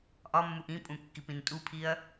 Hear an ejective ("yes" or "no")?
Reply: yes